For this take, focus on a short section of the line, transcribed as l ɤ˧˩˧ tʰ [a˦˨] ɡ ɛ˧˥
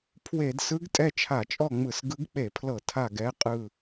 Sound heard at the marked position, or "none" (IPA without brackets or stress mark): a˦˨